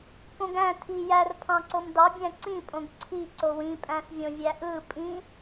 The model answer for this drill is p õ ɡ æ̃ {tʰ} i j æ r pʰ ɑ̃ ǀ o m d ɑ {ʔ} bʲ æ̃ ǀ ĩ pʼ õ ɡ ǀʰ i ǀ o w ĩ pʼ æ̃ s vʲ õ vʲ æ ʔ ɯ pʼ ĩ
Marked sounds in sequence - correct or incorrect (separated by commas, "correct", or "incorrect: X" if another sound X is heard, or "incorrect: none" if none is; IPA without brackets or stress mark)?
correct, incorrect: none